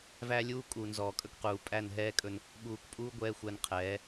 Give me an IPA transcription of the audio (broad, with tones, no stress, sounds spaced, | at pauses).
v æ˦ lʲ uː˦ kʼ uː˨ n z ɔː˨ kʼ ɵ˦ k q uː˨ pʼ æ˦˨ n ɦ ɛː˦ kʼ ɵ˦ n | ɓ uː˨ k pʼ uː˦ ɡʷ ɛː˦ xʷ æ˦ n qʰ ɛː˨˦